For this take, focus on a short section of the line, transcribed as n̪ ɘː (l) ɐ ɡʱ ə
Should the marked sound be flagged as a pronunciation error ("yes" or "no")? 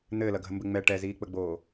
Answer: no